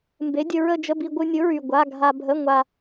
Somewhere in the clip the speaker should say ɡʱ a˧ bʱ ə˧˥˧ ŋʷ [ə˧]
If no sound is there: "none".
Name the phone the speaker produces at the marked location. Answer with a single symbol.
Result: a˧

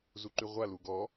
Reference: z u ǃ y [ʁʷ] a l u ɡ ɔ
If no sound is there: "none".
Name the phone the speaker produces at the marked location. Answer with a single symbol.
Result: ʁʷ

